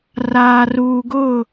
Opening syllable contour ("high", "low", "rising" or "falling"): low